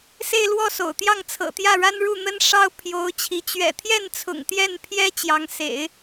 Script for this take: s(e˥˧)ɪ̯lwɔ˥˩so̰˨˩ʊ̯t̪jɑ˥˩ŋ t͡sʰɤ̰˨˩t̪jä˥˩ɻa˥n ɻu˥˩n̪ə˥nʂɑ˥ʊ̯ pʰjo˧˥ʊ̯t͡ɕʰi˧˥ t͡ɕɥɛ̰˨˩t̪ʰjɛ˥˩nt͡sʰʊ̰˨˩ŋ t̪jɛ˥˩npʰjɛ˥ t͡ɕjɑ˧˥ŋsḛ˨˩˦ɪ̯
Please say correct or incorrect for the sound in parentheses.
correct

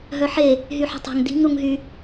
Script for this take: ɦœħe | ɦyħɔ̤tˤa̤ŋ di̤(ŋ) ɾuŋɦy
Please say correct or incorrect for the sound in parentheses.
correct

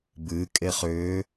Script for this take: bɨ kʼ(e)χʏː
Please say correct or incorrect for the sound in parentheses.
correct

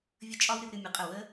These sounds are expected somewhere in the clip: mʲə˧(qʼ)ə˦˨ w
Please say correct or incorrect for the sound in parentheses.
correct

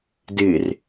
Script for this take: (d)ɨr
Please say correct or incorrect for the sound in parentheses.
correct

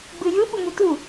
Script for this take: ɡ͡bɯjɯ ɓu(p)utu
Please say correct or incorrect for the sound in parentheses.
incorrect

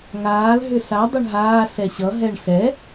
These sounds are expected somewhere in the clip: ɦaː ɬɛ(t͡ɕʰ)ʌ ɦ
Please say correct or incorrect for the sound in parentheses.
incorrect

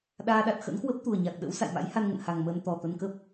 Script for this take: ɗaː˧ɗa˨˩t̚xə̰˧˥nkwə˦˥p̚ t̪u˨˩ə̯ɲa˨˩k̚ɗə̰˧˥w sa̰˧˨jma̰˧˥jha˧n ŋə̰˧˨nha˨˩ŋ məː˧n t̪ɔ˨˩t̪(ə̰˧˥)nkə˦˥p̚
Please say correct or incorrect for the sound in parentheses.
incorrect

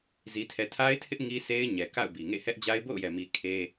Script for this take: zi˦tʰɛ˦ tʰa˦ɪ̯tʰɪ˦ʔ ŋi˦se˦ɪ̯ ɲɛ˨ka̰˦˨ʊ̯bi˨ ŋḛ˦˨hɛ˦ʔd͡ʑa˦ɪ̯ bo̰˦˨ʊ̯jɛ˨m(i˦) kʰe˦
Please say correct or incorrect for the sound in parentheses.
incorrect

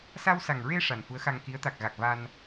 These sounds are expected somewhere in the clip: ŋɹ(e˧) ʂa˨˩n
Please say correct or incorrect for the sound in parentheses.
correct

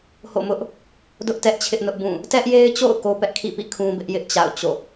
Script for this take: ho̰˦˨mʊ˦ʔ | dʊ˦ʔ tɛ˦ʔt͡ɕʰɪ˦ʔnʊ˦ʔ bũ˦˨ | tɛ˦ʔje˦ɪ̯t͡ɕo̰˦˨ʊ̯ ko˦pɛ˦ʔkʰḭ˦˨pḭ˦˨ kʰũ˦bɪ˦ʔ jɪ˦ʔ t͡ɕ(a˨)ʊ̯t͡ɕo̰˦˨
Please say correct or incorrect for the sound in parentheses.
incorrect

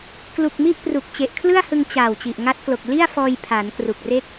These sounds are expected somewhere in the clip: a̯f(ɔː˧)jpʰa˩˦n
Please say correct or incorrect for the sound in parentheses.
correct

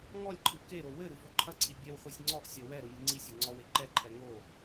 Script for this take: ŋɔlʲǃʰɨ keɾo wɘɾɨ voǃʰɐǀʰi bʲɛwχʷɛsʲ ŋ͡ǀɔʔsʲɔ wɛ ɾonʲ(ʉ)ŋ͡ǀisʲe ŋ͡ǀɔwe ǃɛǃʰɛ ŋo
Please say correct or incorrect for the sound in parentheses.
incorrect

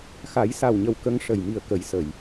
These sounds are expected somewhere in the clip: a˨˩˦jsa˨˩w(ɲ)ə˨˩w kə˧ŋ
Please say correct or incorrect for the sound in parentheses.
correct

